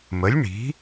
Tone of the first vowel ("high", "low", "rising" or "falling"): rising